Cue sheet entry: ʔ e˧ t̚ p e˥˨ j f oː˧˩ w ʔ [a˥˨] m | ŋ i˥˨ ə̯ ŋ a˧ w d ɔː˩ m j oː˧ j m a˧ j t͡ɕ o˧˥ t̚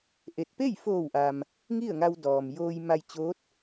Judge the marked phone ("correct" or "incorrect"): incorrect